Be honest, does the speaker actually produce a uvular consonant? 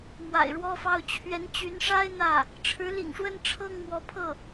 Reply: no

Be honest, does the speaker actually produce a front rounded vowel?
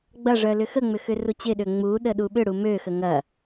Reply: yes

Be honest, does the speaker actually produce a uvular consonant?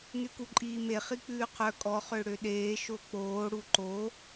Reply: yes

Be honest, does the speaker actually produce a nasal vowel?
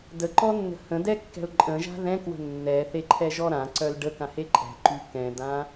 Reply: yes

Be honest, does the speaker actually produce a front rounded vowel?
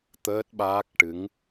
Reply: no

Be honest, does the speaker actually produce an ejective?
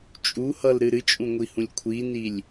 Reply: yes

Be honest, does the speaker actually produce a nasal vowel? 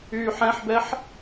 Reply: yes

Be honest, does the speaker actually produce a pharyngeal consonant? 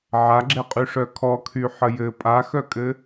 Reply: yes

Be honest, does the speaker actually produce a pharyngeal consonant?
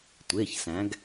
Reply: no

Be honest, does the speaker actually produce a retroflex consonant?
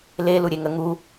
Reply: no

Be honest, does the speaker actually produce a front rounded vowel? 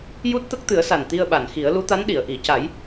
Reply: no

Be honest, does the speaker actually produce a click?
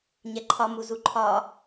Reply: yes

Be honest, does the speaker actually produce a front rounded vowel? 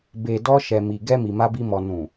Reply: no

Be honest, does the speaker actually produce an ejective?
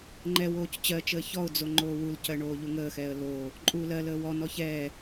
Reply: yes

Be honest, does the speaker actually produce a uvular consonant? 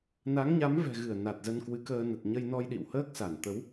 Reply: no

